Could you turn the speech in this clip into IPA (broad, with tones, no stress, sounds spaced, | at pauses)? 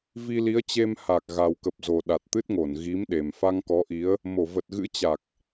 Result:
v i˧ l i˨˦ ə̯ t͡ɕ e˧ m h a˨˩ k̚ ɣ a˨˩ w k ə˨˩ p̚ z o˨˩ ɗ a˨˩ t̚ t̪ ɨ˦˥ t̚ ŋ o˧˩ n ɣ i˨˦ m ɗ e˨˩ m f a˧ ŋ k ɔ˨˦ ʔ i˨˦ ə̯ | m o˧˩ v ə˨˩ t̚ ɣ ɨ̰˧˥ t͡ɕ a˨˩ k̚